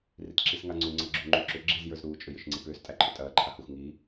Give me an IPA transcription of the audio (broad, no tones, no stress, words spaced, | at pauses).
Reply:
ritǁisŋaŋ͡ǀu ŋ͡ǀɐɡ͡ǁu ŋ͡ǃuǁʏ ɡ͡ǁiz jə˞zɾuː t͡ʃʼʏjʏʃŋ͡ǀipʏːs tʼæǃʰʏtʼɐː ǃʰahux ŋiː